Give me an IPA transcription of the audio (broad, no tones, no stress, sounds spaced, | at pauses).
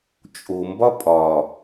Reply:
t͡ʃʼ o m b ɒ pʼ ɒ